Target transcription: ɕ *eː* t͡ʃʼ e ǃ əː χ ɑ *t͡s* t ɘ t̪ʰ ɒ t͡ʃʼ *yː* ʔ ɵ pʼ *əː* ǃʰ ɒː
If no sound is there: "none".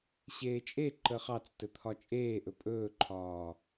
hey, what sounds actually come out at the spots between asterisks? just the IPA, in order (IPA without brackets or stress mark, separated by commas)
eː, t͡s, eː, ɵː